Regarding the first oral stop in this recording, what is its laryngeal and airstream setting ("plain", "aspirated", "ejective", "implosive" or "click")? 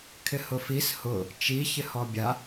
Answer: aspirated